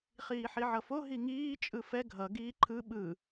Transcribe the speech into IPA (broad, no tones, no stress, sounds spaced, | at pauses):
χ iː ħ i ʕ ʌ f o ɦ i ŋ iː t͡ʃʼ ɯ f ɛ ɡʱ ʌ ɡ iː ǃʰ ɯ ɓ ɯ